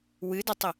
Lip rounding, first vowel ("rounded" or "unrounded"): unrounded